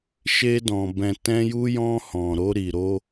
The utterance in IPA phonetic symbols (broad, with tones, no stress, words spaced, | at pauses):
ʃe˧dɔ̃˨ bɛ̃˨tɛ̃˧ju˧jɔ̃˧ hɔ̃˨ɾo˧ ɾi˨ɾo˧